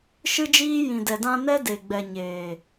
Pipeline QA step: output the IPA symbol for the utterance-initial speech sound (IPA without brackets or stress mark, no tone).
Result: ʃ